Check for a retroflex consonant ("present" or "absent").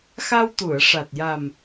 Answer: present